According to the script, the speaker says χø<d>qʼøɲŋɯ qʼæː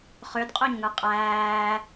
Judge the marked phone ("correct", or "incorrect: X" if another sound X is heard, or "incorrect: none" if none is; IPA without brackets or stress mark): correct